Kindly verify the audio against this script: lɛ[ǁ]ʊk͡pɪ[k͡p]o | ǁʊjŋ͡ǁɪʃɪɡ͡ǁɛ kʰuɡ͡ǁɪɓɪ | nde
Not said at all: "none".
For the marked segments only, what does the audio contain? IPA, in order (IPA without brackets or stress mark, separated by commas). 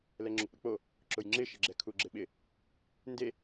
ŋ͡ǁ, k͡p